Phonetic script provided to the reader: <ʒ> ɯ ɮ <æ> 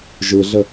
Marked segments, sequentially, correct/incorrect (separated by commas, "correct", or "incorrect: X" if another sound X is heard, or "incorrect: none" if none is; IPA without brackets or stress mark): correct, incorrect: ə